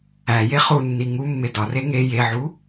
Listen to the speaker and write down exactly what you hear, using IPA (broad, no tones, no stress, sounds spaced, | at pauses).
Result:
æ j e χ u nː i ŋ u mː e d ɒ r e ŋ e j e ʕ u